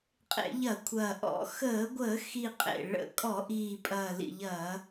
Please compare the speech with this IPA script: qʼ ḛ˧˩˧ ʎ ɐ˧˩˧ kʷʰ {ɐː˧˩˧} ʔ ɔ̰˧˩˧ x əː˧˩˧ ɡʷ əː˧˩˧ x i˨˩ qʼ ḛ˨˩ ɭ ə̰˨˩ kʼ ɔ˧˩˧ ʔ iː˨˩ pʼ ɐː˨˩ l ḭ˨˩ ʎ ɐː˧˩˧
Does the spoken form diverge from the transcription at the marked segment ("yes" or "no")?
yes